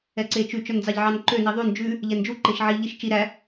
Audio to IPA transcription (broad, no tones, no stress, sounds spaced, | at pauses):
ɛ ǀ e t͡ʃ ʉ t͡ʃ œ n d͡z ɑ ʎ ʕ ɑ n ǃ ø n i ðˤ ʉ n d͡ʒ ʉ | ʎ ɛ n d͡ʒ u ǃ e ʃ ʕ i ʎ i ʃ t͡ʃ i ɾ æ